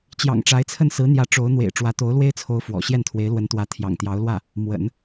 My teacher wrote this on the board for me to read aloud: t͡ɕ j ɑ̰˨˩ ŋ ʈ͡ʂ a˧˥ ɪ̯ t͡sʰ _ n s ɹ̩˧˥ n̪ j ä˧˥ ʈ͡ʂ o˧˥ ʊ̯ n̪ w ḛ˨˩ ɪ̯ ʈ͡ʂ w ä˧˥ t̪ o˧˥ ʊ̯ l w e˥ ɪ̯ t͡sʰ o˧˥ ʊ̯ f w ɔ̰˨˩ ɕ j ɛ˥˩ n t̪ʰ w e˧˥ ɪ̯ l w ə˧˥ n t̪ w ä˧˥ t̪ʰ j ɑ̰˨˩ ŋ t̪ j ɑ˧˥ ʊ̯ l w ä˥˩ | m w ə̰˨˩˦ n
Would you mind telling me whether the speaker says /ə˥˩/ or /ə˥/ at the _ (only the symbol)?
ə˥˩